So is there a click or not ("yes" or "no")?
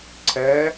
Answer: yes